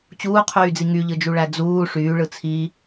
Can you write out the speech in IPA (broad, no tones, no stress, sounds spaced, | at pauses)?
t͡ɕ uː qʰ yː d͡z i ŋ y ʎ ɯ d͡ʒ u ɭ æ d͡z uː ʂ yː ɭ ɯ t͡sʰ i